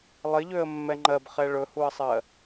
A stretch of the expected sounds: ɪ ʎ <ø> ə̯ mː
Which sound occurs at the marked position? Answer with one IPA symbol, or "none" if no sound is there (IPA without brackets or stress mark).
ø